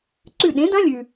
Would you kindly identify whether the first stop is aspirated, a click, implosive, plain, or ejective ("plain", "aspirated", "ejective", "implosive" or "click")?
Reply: click